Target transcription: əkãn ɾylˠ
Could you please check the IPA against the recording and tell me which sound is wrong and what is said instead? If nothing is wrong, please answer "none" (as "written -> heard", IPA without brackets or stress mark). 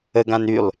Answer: k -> ɡ